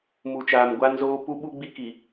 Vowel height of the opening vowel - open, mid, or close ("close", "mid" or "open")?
close